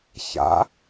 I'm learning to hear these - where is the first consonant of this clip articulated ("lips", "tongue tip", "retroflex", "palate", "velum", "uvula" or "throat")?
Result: palate